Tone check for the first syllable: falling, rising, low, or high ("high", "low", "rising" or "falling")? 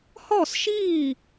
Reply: falling